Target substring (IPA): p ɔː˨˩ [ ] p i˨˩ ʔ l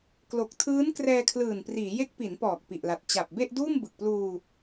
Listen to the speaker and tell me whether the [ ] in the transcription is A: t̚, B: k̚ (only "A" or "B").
B